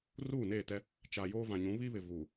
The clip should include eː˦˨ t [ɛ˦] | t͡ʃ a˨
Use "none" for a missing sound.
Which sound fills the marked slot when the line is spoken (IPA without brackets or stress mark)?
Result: ɛ˦